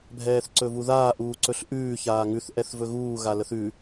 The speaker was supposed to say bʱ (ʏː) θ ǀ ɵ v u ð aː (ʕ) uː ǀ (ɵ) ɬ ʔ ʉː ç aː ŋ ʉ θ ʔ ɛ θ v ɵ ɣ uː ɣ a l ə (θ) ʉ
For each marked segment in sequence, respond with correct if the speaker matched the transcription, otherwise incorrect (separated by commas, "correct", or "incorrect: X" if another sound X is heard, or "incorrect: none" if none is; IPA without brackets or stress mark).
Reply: incorrect: ɛː, incorrect: ʔ, correct, correct